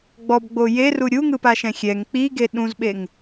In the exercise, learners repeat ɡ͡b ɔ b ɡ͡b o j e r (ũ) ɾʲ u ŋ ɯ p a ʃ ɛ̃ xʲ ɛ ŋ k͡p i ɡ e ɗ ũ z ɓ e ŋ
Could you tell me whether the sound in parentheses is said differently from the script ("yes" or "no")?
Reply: yes